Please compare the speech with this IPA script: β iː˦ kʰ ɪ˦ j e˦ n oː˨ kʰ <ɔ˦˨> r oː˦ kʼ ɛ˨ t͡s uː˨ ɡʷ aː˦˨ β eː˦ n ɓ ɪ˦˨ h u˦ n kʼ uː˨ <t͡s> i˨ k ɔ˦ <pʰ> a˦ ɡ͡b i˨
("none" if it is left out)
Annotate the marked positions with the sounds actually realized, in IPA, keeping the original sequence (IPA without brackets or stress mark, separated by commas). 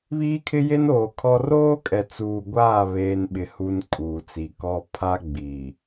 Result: ɔ˦, t͡s, pʰ